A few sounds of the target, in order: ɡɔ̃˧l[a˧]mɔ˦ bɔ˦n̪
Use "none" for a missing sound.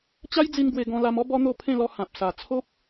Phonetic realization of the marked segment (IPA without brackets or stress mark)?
a˧